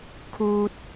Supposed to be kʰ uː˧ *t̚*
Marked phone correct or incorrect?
correct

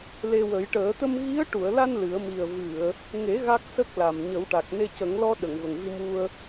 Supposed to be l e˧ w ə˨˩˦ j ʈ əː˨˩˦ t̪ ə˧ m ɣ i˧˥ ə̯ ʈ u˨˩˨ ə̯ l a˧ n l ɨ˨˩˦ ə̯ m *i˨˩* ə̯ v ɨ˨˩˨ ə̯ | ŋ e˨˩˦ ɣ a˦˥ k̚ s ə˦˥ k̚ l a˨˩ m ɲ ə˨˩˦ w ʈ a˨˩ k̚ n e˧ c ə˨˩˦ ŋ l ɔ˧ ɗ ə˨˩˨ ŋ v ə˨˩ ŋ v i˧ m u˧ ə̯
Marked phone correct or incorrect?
correct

